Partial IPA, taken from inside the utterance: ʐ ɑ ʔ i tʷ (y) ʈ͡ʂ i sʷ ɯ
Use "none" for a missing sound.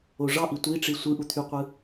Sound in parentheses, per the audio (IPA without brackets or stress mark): i